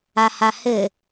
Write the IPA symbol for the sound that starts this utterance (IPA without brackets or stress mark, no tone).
a